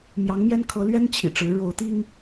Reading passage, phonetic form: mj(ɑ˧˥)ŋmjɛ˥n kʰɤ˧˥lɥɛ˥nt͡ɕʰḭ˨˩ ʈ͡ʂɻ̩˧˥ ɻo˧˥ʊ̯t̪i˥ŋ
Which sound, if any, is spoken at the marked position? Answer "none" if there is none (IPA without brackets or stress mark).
ɑ˧˥